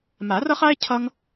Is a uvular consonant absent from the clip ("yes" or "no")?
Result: no